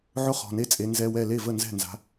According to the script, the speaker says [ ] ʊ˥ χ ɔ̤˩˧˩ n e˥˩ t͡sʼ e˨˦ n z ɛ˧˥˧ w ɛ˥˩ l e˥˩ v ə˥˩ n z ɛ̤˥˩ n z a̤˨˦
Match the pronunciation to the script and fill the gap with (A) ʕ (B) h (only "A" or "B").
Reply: A